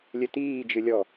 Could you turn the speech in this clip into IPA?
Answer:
lʲ ɘ t iː d͡ʒ ɨ lʲ ɔ

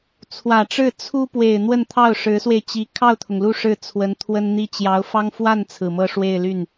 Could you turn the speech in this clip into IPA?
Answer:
t͡sʰ w ä˨˩ ʈ͡ʂ ɻ̩˥˩ t͡sʰ u˥ p w e˨˩ ɪ̯ n̪ w ə˥˧ n t̪ʰ ɑ˥˩ ʊ̯ ʂ ɻ̩˧˥ s w e˧ ɪ̯ t͡ɕ i˧˥ kʰ ɑ˥˩ ʊ̯ t̪ʰ ʊ˩ ŋ l u˥˧ ʂ ɻ̩˥˩ t͡sʰ w ə˧˥ n t̪ʰ w ə˥ n n̪ i˥ t͡ɕ j ɑ˧˥ ʊ̯ f ɑ˥ ŋ f w a˥˩ n t͡sʰ ɹ̩˨˩ m ɤ˥˧ ʂ w e˥˧ ɪ̯ l y˥˩ n

